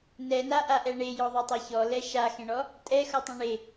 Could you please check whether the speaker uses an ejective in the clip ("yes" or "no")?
yes